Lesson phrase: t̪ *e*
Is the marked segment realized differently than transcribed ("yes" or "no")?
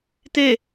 no